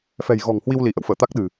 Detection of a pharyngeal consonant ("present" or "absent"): absent